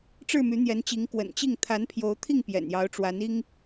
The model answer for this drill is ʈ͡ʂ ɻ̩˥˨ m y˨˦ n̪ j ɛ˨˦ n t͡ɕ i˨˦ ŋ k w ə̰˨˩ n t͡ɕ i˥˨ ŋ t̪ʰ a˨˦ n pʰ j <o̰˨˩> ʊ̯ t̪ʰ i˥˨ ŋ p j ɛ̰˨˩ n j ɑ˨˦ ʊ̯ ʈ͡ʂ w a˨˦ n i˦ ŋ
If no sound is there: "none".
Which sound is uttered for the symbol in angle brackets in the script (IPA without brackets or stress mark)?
o˨˦